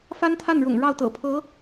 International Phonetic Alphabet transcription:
fa˥nt̪ʰa˥˩nɻʊ̰˨˩ŋ ɻɑ˥˩ʊ̯ t̪ɤ̰˨˩pʰɤ˧˥

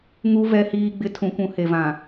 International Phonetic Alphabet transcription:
ŋu˨vɛ˨hiː˨ɡ͡bɪ˨ tʰũ˨kʷũ˨he˨vã˨

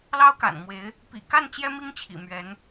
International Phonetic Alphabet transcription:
lɑ˥ʊ̯ka̰˨˩nmwe˧˥ɪ̯ | pḭ˨˩ka˥˩n t͡ɕjɛ˥mi˥ŋt͡ɕʰḭ˨˩ mɥɛ˧˥n

